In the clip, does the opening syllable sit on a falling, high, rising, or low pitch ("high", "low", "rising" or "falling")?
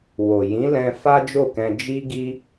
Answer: low